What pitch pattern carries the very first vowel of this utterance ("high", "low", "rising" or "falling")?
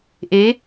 rising